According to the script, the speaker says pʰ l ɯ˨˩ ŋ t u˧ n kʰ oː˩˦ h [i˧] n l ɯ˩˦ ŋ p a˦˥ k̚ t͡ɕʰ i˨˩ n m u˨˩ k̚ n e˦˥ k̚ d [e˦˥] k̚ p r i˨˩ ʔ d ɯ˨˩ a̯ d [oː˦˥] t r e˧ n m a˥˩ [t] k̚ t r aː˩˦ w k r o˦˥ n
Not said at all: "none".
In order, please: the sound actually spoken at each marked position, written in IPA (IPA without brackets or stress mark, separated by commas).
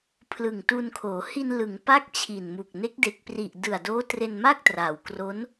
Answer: i˧, e˦˥, oː˦˥, none